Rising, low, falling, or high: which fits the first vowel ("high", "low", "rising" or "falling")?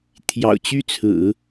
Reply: low